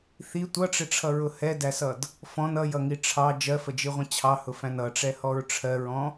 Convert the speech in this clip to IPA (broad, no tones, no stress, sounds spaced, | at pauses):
θ i tʷ ʌ ʈ͡ʂ ɪ ʈ͡ʂʰ ʌ ɹ ʊ h ɛ d æ s ʌ d | f ɔ̃ n ʌ j ʌ ŋ i ʈ͡ʂʰ ɑ d͡ʒ ɜ f ə d͡ʒ i ʁʷ ə̃ t͡ɕʰ ɑ h ʊ f æ̃ n ʌ ʈ͡ʂ ɛ h ɔ ɹ ʈ͡ʂʰ ɜ ɹ ɔ̃